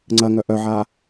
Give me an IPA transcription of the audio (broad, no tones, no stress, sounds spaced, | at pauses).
ŋ͡ǀ ɐ ŋ œ ʔ œ ʕ a